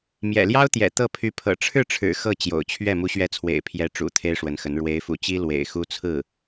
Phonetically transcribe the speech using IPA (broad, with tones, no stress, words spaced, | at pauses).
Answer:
mjɛ̰˨˩ljɑ˥ʊ̯t̪jɛ̰˨˩ t̪ɤ˥˩pʰy˧˥pʰɤ̰˨˩ ʈ͡ʂʰɻ̩˥˩ʈ͡ʂʰɻ̩˨˩ xɤ˥˩t͡ɕjo̰˨˩ʊ̯t͡ɕʰɥɛ˥˩ mu˧˥ɕɥɛ˧˥t͡sʰwḛ˨˩ɪ̯pʰjɛ˧˥ ʈ͡ʂṵ˨˩ t̪ʰe˥ɪ̯ʂwə˧˥nxə˧˥n ɻwe˧˥ɪ̯fṵ˨˩t͡ɕi˥ lwḛ˨˩ɪ̯ xu˥t͡sʰɹ̩˥˩